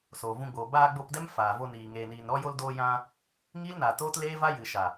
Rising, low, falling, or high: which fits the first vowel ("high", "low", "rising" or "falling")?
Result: low